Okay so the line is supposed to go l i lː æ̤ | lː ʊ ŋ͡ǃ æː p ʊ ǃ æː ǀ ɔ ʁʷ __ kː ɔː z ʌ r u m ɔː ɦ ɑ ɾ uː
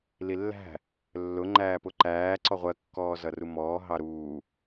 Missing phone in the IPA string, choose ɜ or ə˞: ɜ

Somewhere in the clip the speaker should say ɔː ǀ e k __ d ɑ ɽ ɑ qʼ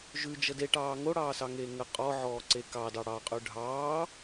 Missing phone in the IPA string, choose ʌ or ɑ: ɑ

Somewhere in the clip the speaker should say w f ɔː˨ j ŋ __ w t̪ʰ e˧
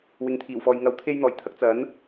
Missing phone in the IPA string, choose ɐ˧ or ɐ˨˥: ɐ˨˥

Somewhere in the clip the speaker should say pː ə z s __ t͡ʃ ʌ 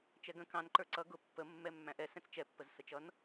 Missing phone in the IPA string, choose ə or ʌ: ə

